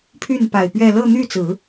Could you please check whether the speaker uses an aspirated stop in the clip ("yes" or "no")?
yes